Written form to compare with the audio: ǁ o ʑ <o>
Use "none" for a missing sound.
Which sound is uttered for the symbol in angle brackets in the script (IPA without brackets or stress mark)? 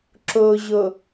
o